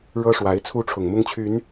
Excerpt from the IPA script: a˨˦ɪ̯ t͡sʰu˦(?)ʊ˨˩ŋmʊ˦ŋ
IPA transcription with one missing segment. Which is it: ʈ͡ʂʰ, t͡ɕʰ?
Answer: ʈ͡ʂʰ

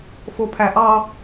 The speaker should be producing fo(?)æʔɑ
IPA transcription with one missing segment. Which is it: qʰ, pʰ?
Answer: pʰ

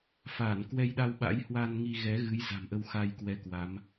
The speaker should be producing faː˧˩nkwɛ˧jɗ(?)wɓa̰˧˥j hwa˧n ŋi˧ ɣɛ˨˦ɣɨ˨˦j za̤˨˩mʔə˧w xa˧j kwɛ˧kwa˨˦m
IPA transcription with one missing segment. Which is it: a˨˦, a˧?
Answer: a˧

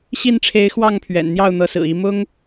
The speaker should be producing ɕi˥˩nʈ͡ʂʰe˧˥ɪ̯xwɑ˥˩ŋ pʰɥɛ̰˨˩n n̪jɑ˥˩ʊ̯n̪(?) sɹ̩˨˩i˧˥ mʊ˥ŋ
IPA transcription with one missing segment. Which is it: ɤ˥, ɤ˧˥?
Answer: ɤ˧˥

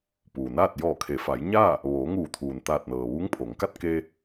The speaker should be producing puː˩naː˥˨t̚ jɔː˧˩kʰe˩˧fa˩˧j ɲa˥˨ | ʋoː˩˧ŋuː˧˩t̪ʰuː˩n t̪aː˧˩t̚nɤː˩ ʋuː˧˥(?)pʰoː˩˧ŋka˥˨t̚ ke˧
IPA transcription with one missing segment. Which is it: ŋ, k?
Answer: ŋ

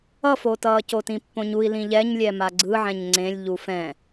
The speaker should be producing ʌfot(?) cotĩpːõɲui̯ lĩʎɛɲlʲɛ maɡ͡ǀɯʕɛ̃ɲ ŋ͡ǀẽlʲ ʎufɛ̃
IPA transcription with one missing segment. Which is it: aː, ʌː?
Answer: ʌː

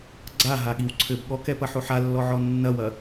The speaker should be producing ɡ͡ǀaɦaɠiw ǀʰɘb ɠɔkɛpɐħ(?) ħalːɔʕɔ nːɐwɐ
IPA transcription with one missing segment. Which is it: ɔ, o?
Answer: o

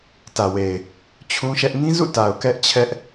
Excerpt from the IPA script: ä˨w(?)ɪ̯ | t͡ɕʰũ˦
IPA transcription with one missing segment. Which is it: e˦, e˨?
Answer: e˨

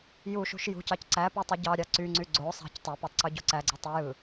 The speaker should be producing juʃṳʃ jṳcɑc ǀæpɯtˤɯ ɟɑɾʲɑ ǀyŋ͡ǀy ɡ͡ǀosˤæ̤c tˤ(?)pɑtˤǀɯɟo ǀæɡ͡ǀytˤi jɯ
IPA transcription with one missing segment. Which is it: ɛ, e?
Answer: e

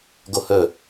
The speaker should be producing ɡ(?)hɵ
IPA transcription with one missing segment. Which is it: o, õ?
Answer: o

